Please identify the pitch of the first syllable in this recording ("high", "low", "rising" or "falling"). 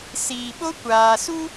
low